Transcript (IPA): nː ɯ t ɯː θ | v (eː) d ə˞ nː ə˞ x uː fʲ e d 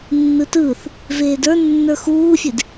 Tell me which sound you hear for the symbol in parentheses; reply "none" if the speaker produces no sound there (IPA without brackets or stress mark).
eː